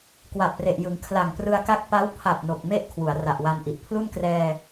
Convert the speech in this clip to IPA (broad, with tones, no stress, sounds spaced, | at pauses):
k w a˨˩ p̚ r e˨˩ ʔ j ɯ˩˦ ŋ kʰ l a˨˩ ŋ p r ɯ˧ a̯ k a˥˩ k̚ p a˦˥ w pʰ a˨˩ p̚ n o˨˩ k̚ m e˥˩ ʔ kʰ w u˩˦ a̯ r a˨˩ ʔ w a˧ n ʔ i˨˩ ʔ pʰ l u˥˩ n k r ɛː˧